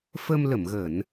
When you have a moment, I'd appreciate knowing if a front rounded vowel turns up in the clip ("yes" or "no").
no